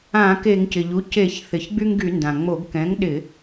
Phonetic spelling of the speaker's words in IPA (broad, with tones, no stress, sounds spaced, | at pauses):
ã˧˩˧ k e˧˩˧ ŋ c ɪ˩ ʎ u˩˥ c e˧˩˧ ç θ ɪ˩˧ ç ɡ͡b y˦ ŋ ɡ y˧˩˧ n d ã˩ ŋ͡m o˧˩˧ ɡ k ɛ̃˩˥ ŋ ɗ ɪ˧˩˧